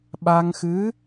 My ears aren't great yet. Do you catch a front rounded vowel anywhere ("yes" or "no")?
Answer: no